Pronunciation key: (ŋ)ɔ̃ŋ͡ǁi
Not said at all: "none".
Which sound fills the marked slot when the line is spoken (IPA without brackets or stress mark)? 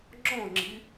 ŋ͡ǁ